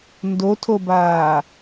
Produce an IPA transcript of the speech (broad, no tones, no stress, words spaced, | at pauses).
ndotʰobaː